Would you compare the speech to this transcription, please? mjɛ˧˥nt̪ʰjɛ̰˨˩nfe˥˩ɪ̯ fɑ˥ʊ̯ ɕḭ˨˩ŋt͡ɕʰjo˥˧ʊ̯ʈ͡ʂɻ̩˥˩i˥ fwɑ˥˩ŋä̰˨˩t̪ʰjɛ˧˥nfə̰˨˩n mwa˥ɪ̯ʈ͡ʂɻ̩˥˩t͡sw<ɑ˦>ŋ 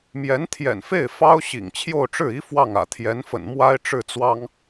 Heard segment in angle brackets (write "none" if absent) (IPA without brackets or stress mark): ɑ˥